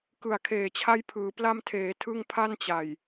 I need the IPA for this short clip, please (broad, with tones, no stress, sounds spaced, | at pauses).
k ɯ˨˩ a̯ kʰ eː˨˩ t͡ɕʰ a˦˥ j pʰ ɯː˩˦ p l a˧ m tʰ eː˩˦ tʰ ɯ˥˩ ŋ pʰ a˥˩ n t͡ɕ a˨˩ j